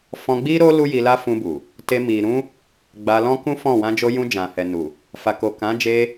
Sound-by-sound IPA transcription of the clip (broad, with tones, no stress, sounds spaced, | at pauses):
f ɔ̃˧ ɡ͡b i˦ ɾ o˦ l u˦ j i˧ l a˦ f ũ˧ b u˨ | t e˧ m i˨ ɾ ũ˧ | ɡ͡b a˧ l ɔ̃˦ k ũ˦ f ɔ̃˦˨ w ã˧ d͡ʒ o˧ j ũ˧ d͡ʒ ã˨ h ɛ˨ n u˨ | f a˨ k o˨ k ã˨˦ d͡ʒ e˧